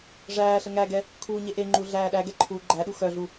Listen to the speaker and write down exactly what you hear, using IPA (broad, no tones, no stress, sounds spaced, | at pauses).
ʐ æː ɬ ə ŋ æ ɡ ɛ | kʰ uː ɲ e ʔ e ŋ͡ǃ u ɮ æː ɗ æ ɡ ɛ ǃʰ uː ɡ͡ǃ æ ɗ u x œ ɮ u